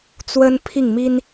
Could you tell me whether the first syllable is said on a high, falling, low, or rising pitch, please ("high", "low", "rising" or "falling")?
high